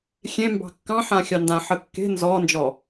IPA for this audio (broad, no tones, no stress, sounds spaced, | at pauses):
xʲ ẽ m b ɑ̤ kː ɑ̃ ħ ã xʲ ɑ n d ã ħ ə kː e̤ n z ɔ n d͡ʒ ɔ